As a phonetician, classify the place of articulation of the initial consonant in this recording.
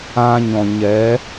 palatal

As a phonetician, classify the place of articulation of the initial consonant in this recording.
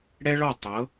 retroflex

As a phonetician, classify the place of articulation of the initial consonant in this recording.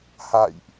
glottal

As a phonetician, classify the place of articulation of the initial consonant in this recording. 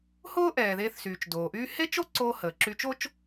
glottal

